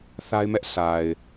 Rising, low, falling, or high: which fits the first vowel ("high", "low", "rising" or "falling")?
high